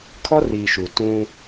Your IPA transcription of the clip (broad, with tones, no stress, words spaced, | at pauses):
kʰɔ˦riː˨ʃu˨ tũ˦